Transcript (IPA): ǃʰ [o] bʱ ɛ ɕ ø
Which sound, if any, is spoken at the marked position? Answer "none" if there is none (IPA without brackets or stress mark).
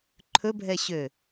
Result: ɵ